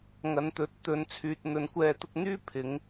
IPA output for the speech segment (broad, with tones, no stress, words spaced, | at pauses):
ŋɐ˨˧nt̪ɵ˨˥t̚ t̪ɵ˨˥n t͡sʰyː˨t̚n̪ɵ˨˥nkʷɛː˧ t̪ʊ˧k̚n̪yː˥ pʰɪ˨˥ŋ